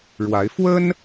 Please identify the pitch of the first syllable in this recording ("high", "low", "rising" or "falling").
rising